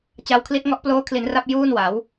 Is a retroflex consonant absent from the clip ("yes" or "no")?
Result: yes